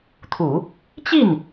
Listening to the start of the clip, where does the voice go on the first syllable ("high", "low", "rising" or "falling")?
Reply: low